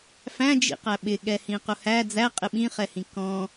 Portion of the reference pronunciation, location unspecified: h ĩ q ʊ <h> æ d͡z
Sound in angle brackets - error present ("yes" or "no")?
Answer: no